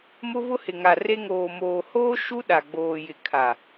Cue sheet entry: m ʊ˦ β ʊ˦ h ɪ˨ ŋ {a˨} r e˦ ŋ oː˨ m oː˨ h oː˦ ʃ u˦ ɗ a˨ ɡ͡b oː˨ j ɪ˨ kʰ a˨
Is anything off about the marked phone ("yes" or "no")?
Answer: no